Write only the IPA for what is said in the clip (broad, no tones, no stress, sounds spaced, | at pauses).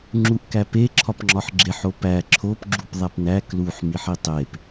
ŋ͡ǁ u ʔ k æ p e ǁʰ ɒ p ŋ͡ǁ ɒ ħ ɡ͡ǁ e ħ o p æ ǁʰ o p ɡ͡ǁ u p ðˤ æ p n æ k l u ħ m i ħ i tˤ e p